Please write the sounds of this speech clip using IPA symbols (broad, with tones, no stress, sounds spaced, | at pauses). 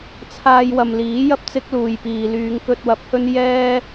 t͡sʰ aː˧ j w ɐ˨ m l iː˨˥ j ɐ˥ p̚ t͡s ɪ˥ k̚ l uː˨ j p iː˨ l yː˨˧ ŋ k ɵ˧ t̚ w ɐ˨˥ p̚ h ɵ˥ n j ɛː˥